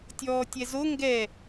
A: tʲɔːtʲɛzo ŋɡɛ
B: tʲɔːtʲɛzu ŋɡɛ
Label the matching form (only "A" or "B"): A